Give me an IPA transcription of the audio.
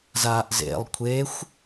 z aː ʔ z ḛ lˠ kʷʰ e xʷ

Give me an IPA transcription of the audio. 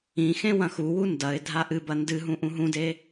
ĩ x ẽ w ɐ̃ x u w u n d ɐ ɪ̯ dʱ a ʔ ɨ b ɐ n d ɨ ɦ ũ ʔ ũ ɦ ũ d e

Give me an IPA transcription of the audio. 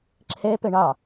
ǁʰ ɛ p ə ɳ ɑ

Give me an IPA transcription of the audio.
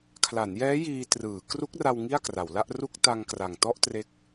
kʰ l a˩˦ n j ɛː˦˥ j iː˧ t r ɯː˩˦ k r u˦˥ k̚ r a˧ w ŋ i˥˩ a̯ k r a˩˦ w l a˥˩ ʔ r u˥˩ k̚ t a˧ ŋ k r a˨˩ ŋ t ɔ˥˩ ʔ t r e˦˥ k̚

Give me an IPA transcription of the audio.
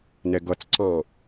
n ɛ ɡ ʌ t͡s ǀ ɑ̃

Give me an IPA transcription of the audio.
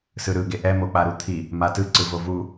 s ɯ ɾ ɯ ɡ e ʔ ɛ m o k͡p a ɾ u t̪ʰ i | m a t ɯ ǀ ɯ v o v u

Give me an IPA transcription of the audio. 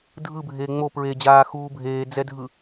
dʱ ɯ bʱ eː ŋ͡m o p ɹ e d͡ʑ aː x uː bʱ eː d͡z ɛ dʱ ɯ

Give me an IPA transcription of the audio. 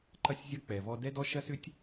ǃ ɐ˦ sʲ zʲ ɐ˦ k͡p ɛ˨ v ɔ˦ d ɛ˦ d ɔ˦ ʃ ɐ˦ s ʏ˦ tʲ

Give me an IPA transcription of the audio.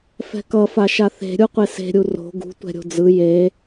f ɛ̤ k ʌ f a ʃ a θ e̤ ɾʲ u qʷ e s e̤ ɾʲ u r o̤ ɡ ṳ tʷ ɛ̤ ɾʲ o̤ d͡z ɯ j e

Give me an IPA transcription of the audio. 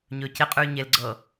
ɲ ɵː c e qʼ ʉː ɲ e l ɡ͡ǀ ɤ

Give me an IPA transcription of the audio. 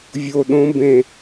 vʲ o ɗ õ b ẽ

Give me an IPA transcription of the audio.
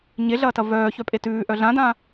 ɲ e ɮ ɐː t ɐ v œː ç œ pʼ e t ʉː ʔ œ ɮ ã d ã

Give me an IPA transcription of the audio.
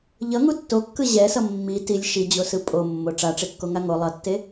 ʎ ʌ ŋ u tː o kː ɯ ʑ ɛ s ʌ mː i t i lʲ ʃ i d͡ʑ o s ɯ pʼ o mː o ʈ͡ʂ a ʈ͡ʂ e kː o ŋ a ŋ o lˠ ʌ tː e

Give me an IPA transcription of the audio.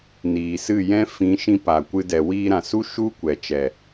n iː˨ s ɨ˦˨ j ɛ̃˦ f ĩ˨˦ ʃ ĩ˧ p a˨ kʷ ɨ˧ d ɛ˨ w iː˧ ɾ ã˨ s u˦ ʃ u˦ kʷ ɛ˨ t͡ʃ ɛ˨

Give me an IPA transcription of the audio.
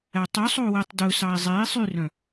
æ tˤ ʉ sˤ o u̯ w e tˤ d ɵ s ɑ i̯ zˤ e i̯ sˤ y r œ̃

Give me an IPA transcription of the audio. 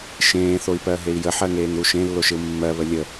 ʃ ẽː θ o i̯ p ɜ ɦ e i̯ j ə ħ ɜ ŋ eː ŋ ɾ u ʃ ẽ lː o ʃ ɪ u̯ mː ɜ β ə lʲ ə

